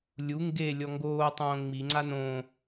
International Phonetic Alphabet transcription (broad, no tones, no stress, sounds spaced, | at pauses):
lʲ u ŋ ɡ e lʲ ɔ ŋ ɡ oː tˤ õː ŋ͡m i ŋ͡ǀ a n õ